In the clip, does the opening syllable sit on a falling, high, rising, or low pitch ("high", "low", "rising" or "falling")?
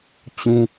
high